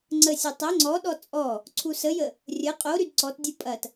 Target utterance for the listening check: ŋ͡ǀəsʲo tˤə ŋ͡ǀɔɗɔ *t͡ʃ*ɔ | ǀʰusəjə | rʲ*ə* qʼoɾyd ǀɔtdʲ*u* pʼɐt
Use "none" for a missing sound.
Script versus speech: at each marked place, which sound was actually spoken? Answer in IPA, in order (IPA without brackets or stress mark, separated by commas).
t͡sʼ, ə, u